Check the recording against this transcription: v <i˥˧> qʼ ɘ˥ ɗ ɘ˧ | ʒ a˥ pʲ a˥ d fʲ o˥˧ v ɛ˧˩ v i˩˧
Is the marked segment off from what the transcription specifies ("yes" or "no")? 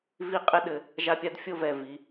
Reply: no